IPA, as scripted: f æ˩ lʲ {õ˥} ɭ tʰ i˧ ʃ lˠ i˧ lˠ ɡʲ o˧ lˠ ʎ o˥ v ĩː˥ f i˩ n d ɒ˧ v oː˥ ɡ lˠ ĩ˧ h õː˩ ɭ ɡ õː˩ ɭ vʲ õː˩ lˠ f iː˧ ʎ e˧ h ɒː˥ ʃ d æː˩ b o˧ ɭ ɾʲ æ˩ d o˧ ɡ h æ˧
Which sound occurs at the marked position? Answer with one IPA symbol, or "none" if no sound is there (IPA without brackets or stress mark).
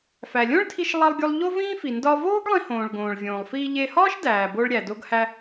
õ˥